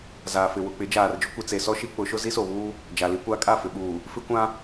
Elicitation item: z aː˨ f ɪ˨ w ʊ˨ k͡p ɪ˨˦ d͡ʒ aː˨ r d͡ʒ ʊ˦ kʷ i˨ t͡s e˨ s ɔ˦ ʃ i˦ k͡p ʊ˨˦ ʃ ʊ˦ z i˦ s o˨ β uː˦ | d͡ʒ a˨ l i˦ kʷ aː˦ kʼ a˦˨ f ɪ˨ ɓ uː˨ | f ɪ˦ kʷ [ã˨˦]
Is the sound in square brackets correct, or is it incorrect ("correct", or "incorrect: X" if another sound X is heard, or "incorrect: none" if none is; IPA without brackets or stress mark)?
incorrect: ã˦